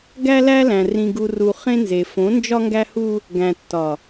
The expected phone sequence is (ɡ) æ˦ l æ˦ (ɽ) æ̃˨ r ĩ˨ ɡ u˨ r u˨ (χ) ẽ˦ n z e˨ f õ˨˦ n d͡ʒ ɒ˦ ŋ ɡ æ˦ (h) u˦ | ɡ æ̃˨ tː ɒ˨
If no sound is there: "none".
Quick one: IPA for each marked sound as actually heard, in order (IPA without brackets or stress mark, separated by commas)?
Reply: ɡ, l, χ, h